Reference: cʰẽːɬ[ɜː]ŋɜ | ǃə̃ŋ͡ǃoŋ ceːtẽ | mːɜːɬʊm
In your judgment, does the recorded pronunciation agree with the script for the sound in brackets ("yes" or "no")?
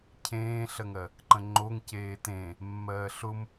no